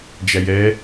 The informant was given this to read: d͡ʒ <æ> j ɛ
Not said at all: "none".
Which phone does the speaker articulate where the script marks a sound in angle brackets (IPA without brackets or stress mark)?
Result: æ